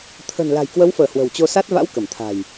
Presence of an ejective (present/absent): absent